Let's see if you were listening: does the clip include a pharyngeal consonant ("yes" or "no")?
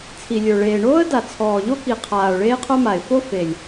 no